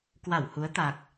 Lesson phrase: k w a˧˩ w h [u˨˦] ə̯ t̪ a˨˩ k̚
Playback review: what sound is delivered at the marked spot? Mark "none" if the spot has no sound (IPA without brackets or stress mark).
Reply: u˨˦